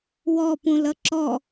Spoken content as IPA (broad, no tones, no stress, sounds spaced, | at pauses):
w ɔ p ũ l ʌ ǁ ɔ